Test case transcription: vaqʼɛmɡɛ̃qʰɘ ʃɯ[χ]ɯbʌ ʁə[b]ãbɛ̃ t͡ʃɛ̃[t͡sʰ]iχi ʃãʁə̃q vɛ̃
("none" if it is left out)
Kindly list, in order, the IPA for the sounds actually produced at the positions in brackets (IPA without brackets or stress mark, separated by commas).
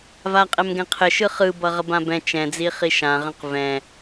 χ, b, d͡z